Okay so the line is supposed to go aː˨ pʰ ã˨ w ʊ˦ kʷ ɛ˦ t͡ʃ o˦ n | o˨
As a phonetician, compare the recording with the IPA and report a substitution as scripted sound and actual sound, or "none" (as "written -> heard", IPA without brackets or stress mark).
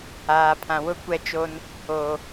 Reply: none